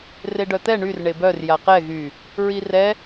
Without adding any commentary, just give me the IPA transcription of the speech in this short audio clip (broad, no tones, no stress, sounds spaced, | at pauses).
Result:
r e ɖ œ t̪ ɛ ɳ y r ɳ e b œ r j a q ɛ ɣ y | ɹ i r ɛ